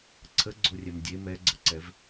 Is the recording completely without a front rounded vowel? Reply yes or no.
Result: yes